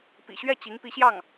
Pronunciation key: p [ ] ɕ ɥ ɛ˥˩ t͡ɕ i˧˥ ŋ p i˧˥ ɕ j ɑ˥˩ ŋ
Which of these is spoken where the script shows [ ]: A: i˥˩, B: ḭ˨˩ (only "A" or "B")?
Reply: B